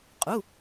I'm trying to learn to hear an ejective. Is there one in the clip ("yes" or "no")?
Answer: yes